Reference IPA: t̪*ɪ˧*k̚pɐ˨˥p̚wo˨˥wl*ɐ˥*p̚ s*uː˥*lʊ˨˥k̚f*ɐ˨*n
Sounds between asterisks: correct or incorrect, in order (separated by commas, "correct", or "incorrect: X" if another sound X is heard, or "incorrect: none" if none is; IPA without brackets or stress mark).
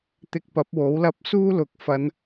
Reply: correct, correct, correct, incorrect: ɐ˨˧